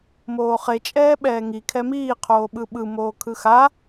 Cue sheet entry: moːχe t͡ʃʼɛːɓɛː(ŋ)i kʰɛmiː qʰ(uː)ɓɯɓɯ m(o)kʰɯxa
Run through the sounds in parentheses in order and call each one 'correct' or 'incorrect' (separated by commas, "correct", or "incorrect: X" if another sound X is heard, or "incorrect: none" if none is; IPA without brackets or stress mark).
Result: correct, incorrect: oː, incorrect: oː